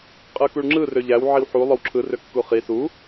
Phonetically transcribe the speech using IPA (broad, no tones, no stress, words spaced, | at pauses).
qʼɯkuɭŋ͡ǁɯ røʎæw ʕiwħu lˠowǁʰɯ røkːuχi su